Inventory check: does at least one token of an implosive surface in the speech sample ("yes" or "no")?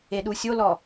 yes